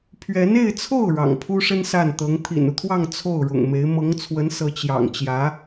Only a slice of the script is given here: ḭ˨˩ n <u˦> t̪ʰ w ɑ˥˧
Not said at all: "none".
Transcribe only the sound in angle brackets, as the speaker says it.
u˦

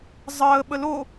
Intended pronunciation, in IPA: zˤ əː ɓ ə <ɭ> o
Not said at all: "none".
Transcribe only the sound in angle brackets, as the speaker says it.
l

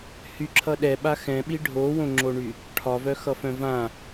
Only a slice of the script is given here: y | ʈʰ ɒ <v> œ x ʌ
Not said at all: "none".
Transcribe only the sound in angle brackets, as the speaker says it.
v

